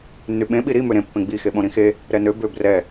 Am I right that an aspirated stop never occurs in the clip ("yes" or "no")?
yes